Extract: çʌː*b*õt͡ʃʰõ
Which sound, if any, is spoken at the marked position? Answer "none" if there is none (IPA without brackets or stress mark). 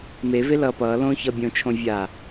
bʲ